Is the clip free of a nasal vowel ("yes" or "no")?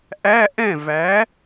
no